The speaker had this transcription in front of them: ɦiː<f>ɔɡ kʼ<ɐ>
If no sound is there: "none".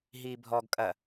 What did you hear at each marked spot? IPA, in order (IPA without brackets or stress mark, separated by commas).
bʱ, ɐ